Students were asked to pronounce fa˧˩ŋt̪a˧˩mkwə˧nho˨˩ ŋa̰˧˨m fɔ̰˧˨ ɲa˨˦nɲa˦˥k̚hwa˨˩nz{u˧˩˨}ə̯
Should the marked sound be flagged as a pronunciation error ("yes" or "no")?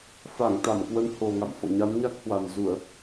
no